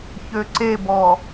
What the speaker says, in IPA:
ç ø ǀ e b ɔ

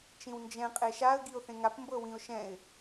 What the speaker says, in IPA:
t͡ʃ ĩ w n d͡ʒ ɛ̃ qʼ e ʃ a ə̯ ɡ i ʊ̯ θ ẽ ŋ a p m b ɤ w ĩ ʊ̯ ʃ ɛ̃ ɪ̯

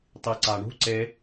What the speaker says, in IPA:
tˤ i ǀ a ɳ ṳ ǀ e

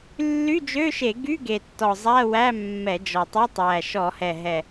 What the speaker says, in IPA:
lː y˧˥˧ d͡ʒ ø˧˥˧ ʃ e˧˩˧ ɡ y˧˥˧ ɡ e˨˩ tː ɔ˨˩ zˤ æ˧˥˧ w æ˧˥˧ mː ɛ˧˩˧ d͡ʒ ɔ˨˩ tˤ ɔ˧˥˧ tˤ j æ˨˩ ʃ ɔ˧˩˧ h ɛ˨˩ ɦ ɛ˨˩

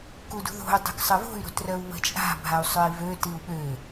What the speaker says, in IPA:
k u d ṳ ð o̤ u̯ dˤ ṳ k sˤ ə v o̤ y̯ ɾ o̤ t r œ u̯ β ə̤ t͡ʃʼ a̤ bʱ a u̯ sˤ œ i̯ v ø t i u̯ ɓ ø

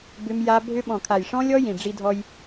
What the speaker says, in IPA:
b ʏ˦ m j a˦ bʱ ʏ˦ ɓ ɔ̃˨ kʰ a˨ j ʂ ɔ̃˦ lʲ ɔ˦ j ĩ˨ ɖ͡ʐ i˦ dʱ ɔ˦ j

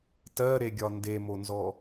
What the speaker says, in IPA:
t ɜ ɾ e ɡʲ ɒ n d e m o n z ɔ

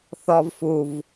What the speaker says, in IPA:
θ ɔ v f u v

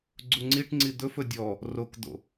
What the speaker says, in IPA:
ɡ͡ǀ u ŋ͡ǀ i ʈ ŋ͡ǀ i d̪ ɵ f ɵ dʲ ɔ | r o k d̪ o̰

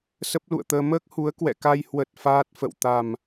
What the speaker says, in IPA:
s ə˦˥ p̚ l ṵ˧˨ ə̯ t̪ əː˧ m əː˦˥ k̚ h u˨˦ ə̯ k w ɛ̰˧˨ k a˧ j h w ə˨˩ t̚ f aː˦˥ t̚ f ə̰˧˨ w t̪ a˨˩ m

